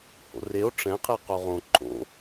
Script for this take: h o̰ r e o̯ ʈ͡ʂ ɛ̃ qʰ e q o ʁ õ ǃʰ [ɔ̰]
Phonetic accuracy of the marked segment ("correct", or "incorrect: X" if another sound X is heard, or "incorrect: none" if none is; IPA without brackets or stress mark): incorrect: o̰